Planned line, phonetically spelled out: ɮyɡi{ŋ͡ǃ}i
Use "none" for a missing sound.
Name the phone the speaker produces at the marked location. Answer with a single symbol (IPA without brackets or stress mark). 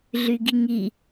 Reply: ŋ